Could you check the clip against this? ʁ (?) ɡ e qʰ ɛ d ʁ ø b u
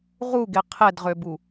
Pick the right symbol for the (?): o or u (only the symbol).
u